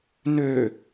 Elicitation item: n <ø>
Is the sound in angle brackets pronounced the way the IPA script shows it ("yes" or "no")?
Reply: yes